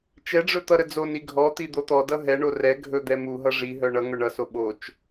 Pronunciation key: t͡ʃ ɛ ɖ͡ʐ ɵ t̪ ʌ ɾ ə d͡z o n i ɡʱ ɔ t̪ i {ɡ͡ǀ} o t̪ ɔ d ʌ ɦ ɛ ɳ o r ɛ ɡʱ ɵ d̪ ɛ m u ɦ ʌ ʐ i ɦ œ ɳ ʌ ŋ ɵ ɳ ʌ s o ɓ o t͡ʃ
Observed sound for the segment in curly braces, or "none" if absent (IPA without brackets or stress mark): d̪